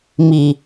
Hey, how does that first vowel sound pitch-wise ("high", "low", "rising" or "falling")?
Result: low